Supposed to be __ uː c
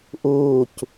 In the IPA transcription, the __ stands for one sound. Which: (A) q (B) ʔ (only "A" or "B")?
B